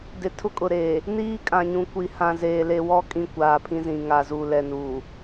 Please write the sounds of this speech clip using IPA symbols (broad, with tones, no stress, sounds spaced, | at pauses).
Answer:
d ɪ˨ tʰ ʊ˦ kʼ ʊ˨ ɾ eː˨ | n iː˦ kʼ ã˨ ɲ ũ˨ kʷ i˨ h ã˨ z eː˨ l e˨ w ɔ˦˨ kʼ ĩ˦ kʷ aː˨ pʰ ĩ˦ z ĩ˨ ŋ a˨ z u˨ l ɛ˨ n uː˨